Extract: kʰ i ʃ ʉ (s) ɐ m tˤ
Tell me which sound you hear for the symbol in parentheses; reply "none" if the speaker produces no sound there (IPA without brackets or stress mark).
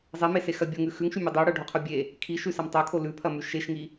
s